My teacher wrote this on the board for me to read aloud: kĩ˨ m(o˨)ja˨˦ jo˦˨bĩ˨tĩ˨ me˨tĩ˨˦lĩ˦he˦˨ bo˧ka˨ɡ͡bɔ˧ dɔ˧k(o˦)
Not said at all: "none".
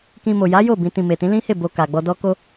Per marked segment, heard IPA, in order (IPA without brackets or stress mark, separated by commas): o˨, o˧